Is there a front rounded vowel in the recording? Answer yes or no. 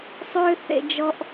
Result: yes